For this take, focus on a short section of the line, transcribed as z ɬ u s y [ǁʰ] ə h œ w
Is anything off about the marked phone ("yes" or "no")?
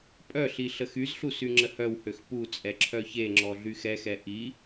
yes